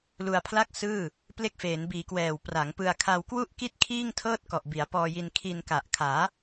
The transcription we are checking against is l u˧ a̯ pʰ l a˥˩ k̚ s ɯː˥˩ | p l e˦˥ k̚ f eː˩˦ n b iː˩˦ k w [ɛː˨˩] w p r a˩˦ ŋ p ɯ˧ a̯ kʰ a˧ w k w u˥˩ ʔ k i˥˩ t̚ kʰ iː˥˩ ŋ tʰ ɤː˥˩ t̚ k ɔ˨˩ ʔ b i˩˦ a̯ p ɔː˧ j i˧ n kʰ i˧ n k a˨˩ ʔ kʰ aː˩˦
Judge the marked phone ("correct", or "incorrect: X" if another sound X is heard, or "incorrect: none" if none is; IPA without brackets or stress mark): correct